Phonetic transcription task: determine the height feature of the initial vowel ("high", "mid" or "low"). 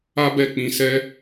low